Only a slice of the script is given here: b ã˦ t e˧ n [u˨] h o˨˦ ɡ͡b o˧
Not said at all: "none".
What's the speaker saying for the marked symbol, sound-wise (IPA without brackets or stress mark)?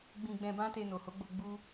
o˨